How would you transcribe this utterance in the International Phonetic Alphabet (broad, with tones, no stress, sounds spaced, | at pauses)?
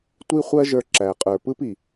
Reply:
tʷ i˦ χʷ ɜ˦ ʒ ə˞˧ ǁ æ˨ qʼ ə˞˨ p ɯ˦ p i˨